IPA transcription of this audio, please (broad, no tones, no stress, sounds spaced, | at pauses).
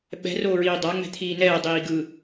ɓ ɛ̤ r oː ɹ iː dˤ a ŋ͡m ɛ̤ t̪ʰ iː n ɛː dˤ iː ɡ ɯ